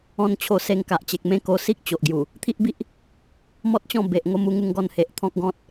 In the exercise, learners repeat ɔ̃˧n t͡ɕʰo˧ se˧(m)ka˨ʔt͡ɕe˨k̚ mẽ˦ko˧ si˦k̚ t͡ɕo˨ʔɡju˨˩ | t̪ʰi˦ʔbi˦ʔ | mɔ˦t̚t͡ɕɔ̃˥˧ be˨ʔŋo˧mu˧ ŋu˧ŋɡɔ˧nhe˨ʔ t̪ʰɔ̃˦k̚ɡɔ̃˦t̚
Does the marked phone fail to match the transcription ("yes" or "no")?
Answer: yes